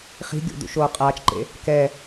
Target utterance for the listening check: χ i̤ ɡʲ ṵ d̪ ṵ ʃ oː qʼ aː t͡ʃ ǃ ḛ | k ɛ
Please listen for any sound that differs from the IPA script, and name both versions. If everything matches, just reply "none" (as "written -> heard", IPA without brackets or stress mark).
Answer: none